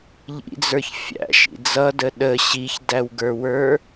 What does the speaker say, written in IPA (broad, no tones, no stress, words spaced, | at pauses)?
ʎḭd͡zə˞ç fʲæ̰ʃḭ d͡zʌdə ɗə ɕiçdæwɡə˞wə˞